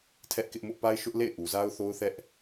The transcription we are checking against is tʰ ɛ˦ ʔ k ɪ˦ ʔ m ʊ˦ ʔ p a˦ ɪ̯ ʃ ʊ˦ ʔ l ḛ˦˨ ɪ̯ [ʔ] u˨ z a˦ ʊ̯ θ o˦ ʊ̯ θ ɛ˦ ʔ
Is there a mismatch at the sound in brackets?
no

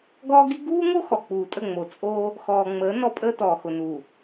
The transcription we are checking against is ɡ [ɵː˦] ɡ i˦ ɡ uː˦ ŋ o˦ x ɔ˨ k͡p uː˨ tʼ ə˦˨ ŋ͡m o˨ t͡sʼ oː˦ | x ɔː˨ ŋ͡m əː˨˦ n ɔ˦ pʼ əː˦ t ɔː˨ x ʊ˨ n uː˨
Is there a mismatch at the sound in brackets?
yes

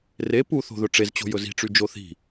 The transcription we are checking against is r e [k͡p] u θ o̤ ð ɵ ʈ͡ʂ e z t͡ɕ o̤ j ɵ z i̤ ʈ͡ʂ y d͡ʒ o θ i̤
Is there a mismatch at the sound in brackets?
yes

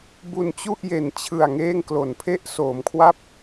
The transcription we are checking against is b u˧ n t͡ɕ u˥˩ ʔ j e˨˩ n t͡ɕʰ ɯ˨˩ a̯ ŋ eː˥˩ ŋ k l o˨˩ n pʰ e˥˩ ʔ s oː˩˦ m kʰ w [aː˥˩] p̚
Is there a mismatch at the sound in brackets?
yes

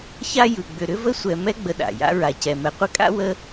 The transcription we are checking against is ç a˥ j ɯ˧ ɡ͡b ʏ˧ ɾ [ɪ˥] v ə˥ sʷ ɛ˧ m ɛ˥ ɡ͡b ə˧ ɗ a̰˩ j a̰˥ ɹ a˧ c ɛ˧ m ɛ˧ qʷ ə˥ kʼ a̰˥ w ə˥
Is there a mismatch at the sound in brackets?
yes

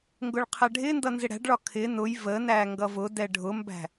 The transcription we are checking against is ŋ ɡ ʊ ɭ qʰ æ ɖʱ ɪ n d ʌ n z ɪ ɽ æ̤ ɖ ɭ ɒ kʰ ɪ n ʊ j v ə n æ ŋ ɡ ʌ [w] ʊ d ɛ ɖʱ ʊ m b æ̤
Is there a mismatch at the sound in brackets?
yes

